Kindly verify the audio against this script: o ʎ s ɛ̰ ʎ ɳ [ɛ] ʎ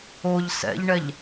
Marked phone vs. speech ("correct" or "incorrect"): correct